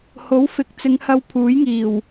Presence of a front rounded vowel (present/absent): absent